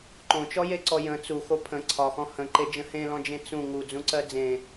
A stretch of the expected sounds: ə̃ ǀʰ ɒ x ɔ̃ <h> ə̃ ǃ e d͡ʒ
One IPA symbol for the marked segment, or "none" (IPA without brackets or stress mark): h